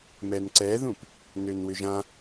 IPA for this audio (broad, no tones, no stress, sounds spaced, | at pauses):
m ɛ n ǀ ɛ ð ũ p | n ø n w ʏ ʒ ã